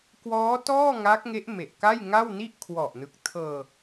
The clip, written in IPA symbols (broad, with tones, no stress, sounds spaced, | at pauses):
k w ɔː˦˥ t ɔː˥˩ ŋ a˦˥ k̚ ŋ e˦˥ ʔ m e˨˩ ʔ k a˥˩ j ŋ a˥˩ w n i˥˩ ʔ kʰ w ɔ˨˩ ʔ n ɯ˨˩ k̚ tʰ ɤː˧